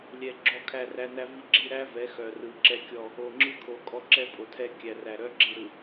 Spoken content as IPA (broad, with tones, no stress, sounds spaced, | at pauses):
lʲ ɛ˨ ɡ͡ǁ ɔ˦˨ kʰ æ˦˨ r æ˦ n æ˦ v i˦ ɡ͡ǁ i˦ ɾ æ˦ v ɛ˨˦ x œ˨ r ɯ˨ ǁ ɛ˦ kʲ ɔ˦˨ | o˨ ŋ͡ǁ ɯ˦ kʰ o˨ kʼ ɔ˦ ǁ ɛ˦ pʼ o˨ tʰ ɛ˦ kʲ æ˨ r æ˨ ɾ œ˦ ɡ͡ǁ i˨ ɾ ɯ˨